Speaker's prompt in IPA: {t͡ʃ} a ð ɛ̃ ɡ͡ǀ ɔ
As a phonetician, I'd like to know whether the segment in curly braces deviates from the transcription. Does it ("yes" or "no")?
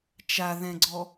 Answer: no